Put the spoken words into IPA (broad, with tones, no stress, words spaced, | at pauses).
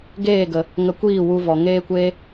ɡeː˦˨ɡə˨ | ŋə˧kʷiː˦˨wu˧ vɔ˨ŋeː˦kʷeː˦